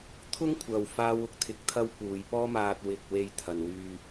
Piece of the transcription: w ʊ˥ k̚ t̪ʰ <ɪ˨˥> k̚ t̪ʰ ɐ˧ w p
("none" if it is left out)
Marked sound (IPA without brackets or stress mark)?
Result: ɪ˨˥